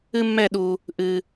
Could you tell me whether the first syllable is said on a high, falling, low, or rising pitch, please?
high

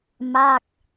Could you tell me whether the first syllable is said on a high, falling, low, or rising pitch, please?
falling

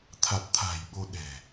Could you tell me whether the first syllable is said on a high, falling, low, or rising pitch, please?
low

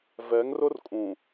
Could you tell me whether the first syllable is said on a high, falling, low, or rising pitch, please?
rising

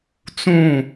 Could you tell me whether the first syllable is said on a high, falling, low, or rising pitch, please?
falling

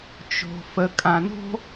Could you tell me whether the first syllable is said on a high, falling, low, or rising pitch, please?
low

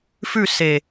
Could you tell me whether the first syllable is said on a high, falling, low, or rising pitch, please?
falling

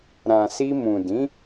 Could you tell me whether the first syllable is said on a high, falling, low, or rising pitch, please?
low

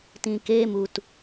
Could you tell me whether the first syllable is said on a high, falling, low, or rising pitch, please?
low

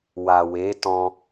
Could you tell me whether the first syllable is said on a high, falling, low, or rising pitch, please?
low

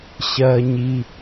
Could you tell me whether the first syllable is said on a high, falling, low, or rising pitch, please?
high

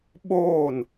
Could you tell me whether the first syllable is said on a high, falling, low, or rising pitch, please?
falling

